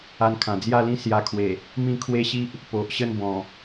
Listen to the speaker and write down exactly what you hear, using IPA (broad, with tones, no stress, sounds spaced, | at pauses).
a˧ n kʰ ã˨˩ d͡z j a˥˧ l ĩ˥˧ s j a˧ kʰ w e˨˩ | m ĩ˥˧ kʰ w e˦ ɕ i˦ ʔ | p o˨ ʔ ɕ ə˥˧ n b ɔ̃˨˩